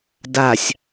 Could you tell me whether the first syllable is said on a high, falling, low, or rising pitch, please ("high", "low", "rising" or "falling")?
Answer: low